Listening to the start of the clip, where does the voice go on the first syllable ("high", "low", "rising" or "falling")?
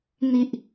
low